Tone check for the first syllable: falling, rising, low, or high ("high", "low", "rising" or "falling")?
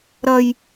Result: high